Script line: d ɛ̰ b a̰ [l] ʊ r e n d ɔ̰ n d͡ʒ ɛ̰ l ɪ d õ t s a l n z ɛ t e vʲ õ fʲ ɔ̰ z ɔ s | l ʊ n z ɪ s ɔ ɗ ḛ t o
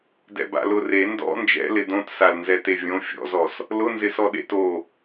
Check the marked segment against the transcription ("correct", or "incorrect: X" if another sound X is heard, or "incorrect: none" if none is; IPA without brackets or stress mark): correct